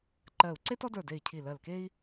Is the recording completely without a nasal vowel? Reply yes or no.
yes